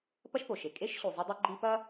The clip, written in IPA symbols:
pɐ˥ʃpo˩ʃe˨ kʼe˥ʃ ɕu˨zˤɨ˦dˤe˥ ɡ͡ǃi˦pɐ˥

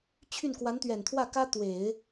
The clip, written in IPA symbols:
t͡ɕʰy˥˩n kwa˧˥nt̪ɥɛ˨˩nt̪ʰwä˥˩kä˥ t̪we˨˩˦ɪ̯

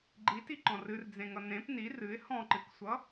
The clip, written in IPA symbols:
ɡ͡ǃitiǃɔ̃ rɨrd͡zẽŋʌ nẽp ni rɨɪ̯ hɔ̃ǃɨksʷʌ

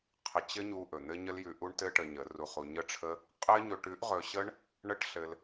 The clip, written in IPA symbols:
qʰə˧ t͡ɕɘ˦ɲu˧ ʔɵ˨n̪ɘ˦ɲə˦ljʉ˧ ʔu˦ɳtɘ˦ ʈə˧ɲə˨˦ru˧χu˧ ɲə˦ʈ͡ʂʰə˦ | qʼɘ˦ɲɵ˧ʈ ʉ˦ʔʁɵ˧ ɕə˦ɳ | ɳə˦ʈɬɘ˧l

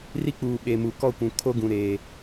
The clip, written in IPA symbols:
ri˦k͡puː˨ ɓe˨mu˨kɔ˦˨kʷũ˨ kʰo˦ɡũ˨ ɾeː˨

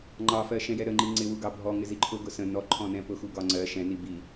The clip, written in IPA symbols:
ŋ͡ǃɑfɜʃɛ̃jɛ ɾəŋ͡ǃi ŋ͡ǀɪwuɡɑ bʱɔŋɪzi ǃʰʊɡʊ sə̃ nɔǃʰɔ̃nɛ̃ pʊxuɡɒ ŋ͡ǀɜ ʃɛ̃ni bi

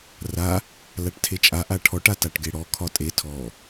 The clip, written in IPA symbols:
ra | laʈtʰet͡ʃʼa ʔaʈʰɔʈ ataʈɡeɽɔ kʰɒtʼe tʰɔ

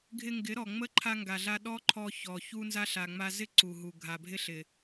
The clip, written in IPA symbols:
ɡʱɪ˧ŋɡɪ˨˦ɾɔ˨ ŋ͡mə˦ǃʰa˧ŋɡa˨ɮa˧ ɗɔ˦ǃʰɔ˧çɔ˨ çu˧nza˧ ɬa˨ŋ͡ma˧zɪ˦ ǀu˨ɦu˨ ɡʱa˨bʱɪ˧ɬɪ˨

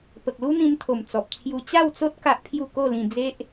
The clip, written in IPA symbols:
pə˨k̚lu˦n̪ĩ˧nt̪ʰo˨˩m t͡sɔ˨p̚t͡sʰju˧ t͡ɕa˥˧wt͡so˦t̚ ka˦ʔpʰju˥˧ ko˥˧lĩ˧d͡ze˦ʔ

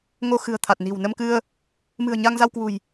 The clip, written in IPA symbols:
ŋo˧xɨ̤˨˩ə̯t̪ʰa˨˩t̚ni̤˨˩w nə˧mkɨ˧ə̯ | mɨ̤˨˩ə̯ ɲa˧ŋza˧wkwṳ˨˩j

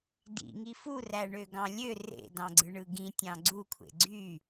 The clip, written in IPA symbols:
dḭŋi furæɳøɡɑ̃ lʲø rḛdɑ̃ɡ͡ǀɯɳɯ ɡĩtʲɑ̃ ɡ͡ǀukʷʰḛ ɡ͡ǀy

